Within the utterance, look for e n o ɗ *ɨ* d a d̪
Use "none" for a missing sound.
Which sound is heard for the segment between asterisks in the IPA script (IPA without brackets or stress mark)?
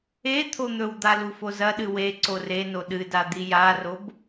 ɨ